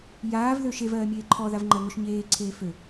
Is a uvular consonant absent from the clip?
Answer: yes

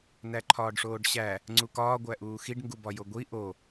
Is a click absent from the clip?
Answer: no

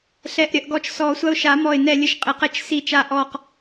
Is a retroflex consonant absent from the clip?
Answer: yes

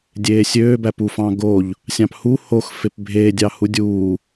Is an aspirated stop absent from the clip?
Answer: yes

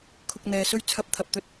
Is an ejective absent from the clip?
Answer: yes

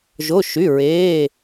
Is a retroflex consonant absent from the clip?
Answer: yes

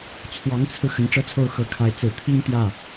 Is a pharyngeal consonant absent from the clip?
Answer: yes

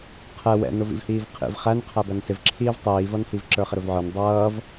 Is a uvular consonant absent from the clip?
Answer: no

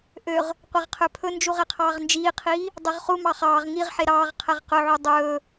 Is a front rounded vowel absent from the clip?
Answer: no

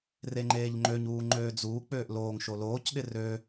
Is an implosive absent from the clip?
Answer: no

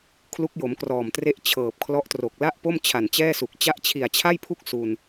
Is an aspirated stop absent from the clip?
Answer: no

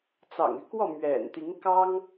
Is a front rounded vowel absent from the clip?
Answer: no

